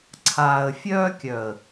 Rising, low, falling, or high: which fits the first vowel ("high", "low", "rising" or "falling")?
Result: low